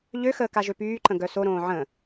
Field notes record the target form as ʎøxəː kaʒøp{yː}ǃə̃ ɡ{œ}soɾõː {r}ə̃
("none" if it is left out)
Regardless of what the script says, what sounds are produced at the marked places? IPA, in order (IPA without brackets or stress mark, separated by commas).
yː, œ, ʕ